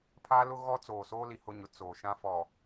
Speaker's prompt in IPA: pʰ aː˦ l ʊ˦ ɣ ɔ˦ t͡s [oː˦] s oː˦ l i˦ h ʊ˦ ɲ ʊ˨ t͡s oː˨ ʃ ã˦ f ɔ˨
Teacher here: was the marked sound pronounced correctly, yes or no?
no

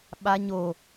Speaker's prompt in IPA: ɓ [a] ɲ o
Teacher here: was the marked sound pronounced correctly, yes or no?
yes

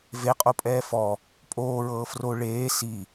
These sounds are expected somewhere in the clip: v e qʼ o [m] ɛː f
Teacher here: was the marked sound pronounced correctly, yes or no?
no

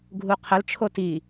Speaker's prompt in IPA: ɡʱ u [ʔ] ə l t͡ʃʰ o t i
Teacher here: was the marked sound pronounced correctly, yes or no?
no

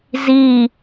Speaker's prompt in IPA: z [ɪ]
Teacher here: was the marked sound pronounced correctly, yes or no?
no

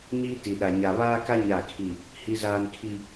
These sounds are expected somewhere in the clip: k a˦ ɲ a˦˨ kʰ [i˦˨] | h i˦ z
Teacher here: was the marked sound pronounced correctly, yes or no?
yes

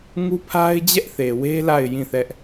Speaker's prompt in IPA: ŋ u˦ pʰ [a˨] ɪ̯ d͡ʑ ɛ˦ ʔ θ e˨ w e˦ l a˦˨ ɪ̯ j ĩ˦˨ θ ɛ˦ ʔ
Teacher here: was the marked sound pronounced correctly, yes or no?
no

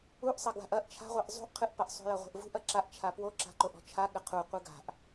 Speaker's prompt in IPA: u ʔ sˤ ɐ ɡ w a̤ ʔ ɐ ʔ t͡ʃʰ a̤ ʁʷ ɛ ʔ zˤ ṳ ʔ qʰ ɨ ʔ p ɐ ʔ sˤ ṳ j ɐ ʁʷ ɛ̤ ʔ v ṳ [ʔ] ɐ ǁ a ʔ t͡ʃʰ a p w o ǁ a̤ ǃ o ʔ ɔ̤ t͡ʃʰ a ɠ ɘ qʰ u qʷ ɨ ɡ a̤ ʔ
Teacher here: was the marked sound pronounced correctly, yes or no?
yes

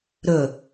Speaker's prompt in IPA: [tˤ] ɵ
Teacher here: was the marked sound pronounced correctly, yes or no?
no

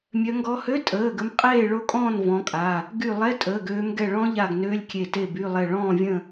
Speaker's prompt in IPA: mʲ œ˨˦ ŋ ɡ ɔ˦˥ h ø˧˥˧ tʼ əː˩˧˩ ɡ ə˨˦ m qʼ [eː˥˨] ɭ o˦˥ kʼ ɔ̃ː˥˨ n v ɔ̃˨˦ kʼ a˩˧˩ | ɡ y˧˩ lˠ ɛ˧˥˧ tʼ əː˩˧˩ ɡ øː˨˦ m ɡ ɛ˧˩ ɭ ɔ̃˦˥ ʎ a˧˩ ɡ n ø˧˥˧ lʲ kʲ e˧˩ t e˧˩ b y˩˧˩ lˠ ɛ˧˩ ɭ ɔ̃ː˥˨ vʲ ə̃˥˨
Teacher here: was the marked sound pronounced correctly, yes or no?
yes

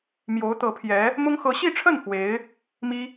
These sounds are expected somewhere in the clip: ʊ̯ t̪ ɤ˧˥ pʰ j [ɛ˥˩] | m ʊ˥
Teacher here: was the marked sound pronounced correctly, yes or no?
no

